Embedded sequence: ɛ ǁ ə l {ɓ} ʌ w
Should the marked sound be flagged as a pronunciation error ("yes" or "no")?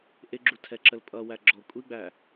yes